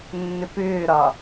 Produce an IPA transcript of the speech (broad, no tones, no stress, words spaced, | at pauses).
nːʏpʏːɾɒ